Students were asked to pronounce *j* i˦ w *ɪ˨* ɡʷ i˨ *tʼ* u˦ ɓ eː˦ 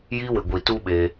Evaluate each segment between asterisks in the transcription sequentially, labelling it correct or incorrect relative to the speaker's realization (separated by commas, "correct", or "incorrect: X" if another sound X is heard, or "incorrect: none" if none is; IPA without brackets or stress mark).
correct, correct, incorrect: t